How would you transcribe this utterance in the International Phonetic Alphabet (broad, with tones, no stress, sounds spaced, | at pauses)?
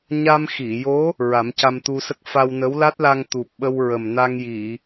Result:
ɲ a˧ m x i˨˩˨ j o˧˥ | ɹ a˨˩˦ m c a˧ m t̪ u˧ s ə˦˥ k̚ f a˧ w n ə˧˥ w l a˦˥ t̚ l a˧ ŋ t̪ u˨˩ p̚ ɓ ə˧ w ɹ ə˨˩ m n a˧ ŋ j i˨˩˨